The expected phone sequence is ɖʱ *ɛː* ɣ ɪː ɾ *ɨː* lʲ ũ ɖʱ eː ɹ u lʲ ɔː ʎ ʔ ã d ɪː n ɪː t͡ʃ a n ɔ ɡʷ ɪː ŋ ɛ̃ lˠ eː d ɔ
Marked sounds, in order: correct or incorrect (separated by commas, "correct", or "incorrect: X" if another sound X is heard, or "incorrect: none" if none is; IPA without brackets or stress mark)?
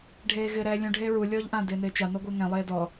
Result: incorrect: eː, incorrect: ɛː